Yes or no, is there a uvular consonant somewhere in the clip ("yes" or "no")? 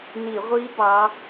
yes